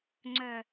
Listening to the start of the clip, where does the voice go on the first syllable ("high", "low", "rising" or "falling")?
low